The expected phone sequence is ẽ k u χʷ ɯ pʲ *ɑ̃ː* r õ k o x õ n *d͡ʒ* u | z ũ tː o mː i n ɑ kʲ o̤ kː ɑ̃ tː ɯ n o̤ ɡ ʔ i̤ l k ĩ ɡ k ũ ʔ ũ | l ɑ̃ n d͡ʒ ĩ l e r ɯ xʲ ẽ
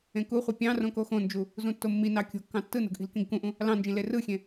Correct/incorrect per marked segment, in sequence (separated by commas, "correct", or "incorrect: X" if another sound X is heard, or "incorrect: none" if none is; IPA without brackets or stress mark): incorrect: ɑ̃, correct